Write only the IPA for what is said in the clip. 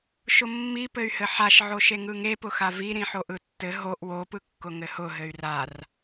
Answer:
ʃ ʊ mː i p ɘ y̯ h ɘ ħ a ʃ ʕ o ʃ e ŋ ɯ ŋ e p ʊ x a v i ɾ ĩ ħ o ʔ ɯ tː ɘ ɦ o ʔ w o p ɯ kː ʊ ŋ ɘ h ʊ ɦ ɘ y̯ r a r

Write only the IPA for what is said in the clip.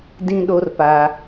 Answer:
d ĩ˦ ɗ o˦ r p a˦

